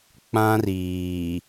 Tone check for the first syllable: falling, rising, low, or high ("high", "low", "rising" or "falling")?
high